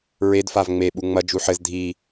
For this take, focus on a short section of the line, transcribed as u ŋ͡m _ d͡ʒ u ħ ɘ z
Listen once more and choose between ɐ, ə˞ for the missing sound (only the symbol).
ɐ